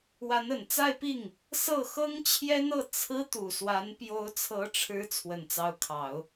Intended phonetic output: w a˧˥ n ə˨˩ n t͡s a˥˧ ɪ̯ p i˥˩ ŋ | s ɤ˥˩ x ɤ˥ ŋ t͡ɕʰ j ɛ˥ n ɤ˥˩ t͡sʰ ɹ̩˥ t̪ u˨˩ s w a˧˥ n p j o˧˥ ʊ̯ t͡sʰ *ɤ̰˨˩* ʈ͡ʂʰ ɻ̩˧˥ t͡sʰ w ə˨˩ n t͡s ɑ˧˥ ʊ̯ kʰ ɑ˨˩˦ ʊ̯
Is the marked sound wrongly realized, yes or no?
yes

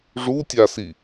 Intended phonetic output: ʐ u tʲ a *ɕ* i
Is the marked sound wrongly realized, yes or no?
yes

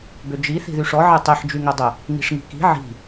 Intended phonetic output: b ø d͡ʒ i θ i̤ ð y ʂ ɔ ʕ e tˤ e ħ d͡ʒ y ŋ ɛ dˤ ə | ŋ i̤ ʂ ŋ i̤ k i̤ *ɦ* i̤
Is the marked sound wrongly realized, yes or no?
yes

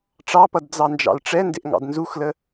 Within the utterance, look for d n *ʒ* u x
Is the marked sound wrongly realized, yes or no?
yes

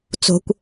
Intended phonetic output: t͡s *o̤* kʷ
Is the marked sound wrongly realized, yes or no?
no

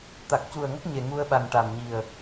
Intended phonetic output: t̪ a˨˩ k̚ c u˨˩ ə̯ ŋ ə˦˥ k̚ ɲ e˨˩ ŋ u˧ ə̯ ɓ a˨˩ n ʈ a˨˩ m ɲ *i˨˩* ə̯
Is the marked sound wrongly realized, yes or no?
no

